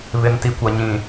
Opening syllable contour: low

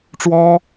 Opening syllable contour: high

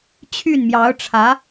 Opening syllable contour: falling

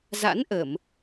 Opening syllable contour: rising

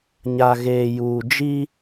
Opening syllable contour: low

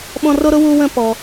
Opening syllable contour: high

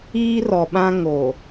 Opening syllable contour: high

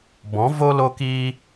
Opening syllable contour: rising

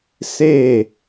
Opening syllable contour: falling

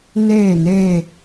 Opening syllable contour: falling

